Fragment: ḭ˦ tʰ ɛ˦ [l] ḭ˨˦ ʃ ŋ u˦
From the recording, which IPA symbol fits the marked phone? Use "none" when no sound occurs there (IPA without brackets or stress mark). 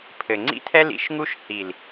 l